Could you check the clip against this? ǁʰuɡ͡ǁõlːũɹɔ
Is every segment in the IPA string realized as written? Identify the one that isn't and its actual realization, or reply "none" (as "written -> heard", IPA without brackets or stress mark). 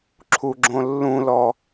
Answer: ɹ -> l